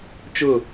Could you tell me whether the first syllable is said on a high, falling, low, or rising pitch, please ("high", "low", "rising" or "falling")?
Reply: falling